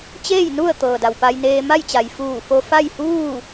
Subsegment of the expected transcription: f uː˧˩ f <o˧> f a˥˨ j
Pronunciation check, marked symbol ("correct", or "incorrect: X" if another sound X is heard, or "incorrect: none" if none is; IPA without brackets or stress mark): correct